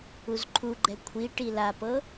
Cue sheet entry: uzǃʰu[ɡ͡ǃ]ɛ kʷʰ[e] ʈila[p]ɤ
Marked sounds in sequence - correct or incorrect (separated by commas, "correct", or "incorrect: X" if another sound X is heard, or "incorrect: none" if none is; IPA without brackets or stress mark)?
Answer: correct, incorrect: i, correct